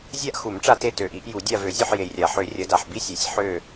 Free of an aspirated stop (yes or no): yes